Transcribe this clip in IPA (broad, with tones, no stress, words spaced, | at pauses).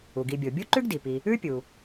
u˩ɡi˨bʲo˩ bʲu˥ǃʉ˥ɡdi˩pi˨ | ʉ˥pʲu˩